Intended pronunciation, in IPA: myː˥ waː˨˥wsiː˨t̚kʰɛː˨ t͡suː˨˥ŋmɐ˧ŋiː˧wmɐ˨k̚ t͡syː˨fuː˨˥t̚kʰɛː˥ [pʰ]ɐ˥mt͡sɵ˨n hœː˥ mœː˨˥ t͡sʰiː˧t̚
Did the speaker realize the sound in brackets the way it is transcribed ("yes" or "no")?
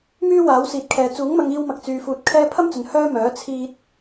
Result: yes